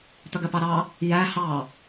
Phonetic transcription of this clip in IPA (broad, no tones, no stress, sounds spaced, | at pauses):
t̪ ʌ ɡ ɜ p ɑ ɾ ɑ | j æ h ɑ